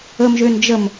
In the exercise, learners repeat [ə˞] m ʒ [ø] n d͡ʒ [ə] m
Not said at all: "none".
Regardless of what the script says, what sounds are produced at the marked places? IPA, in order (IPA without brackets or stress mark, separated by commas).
ə, ø, ə